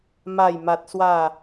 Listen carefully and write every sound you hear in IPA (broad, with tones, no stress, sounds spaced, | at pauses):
m a˥˧ j m a˦ t̚ s w a˥˧